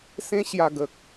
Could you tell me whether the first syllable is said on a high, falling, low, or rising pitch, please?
high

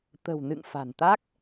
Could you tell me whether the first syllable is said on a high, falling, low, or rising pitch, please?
low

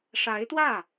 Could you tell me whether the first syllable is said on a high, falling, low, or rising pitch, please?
rising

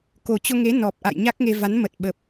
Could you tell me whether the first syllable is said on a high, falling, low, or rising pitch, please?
low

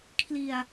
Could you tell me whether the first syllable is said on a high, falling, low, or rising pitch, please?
low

